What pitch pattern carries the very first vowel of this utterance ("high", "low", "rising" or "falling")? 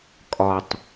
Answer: low